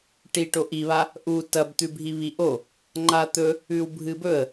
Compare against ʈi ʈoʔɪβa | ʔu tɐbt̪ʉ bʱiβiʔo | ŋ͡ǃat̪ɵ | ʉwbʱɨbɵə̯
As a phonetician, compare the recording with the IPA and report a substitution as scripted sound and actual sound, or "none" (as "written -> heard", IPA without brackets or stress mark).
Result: ɪ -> i